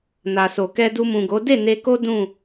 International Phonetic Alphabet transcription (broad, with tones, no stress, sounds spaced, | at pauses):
n a˨ s o˨ k ɛ˧ d u˧ m ũ˨ ɡ o˨˦ d e˦˨ n e˧ k o˦ d ũ˦˨